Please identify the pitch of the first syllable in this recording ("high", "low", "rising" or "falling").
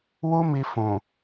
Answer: high